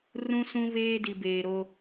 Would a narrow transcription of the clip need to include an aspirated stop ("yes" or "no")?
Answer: no